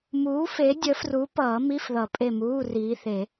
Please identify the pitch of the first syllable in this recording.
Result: rising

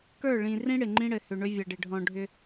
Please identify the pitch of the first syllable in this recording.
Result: falling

